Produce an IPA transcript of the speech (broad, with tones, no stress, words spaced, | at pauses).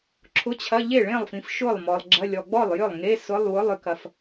ǁʰʊ˧˥˧t͡ɕʰɐ˧˥˧ ʎe˥˩ɭẽ˥˩lˠfĩ˨f ʃʊ˥˩lˠmɔ˨lˠɡ͡ǁɐ˧˥˧ lʲɔ˨ɡ͡bɔ˥˩lˠjʏ˥˩lˠ ŋe˧˥˧ sʊ˧˥˧lˠwʊ˧˥˧lˠ ʏ˨kɐ˨f